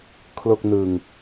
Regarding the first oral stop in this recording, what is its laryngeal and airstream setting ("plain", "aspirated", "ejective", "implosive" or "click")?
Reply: aspirated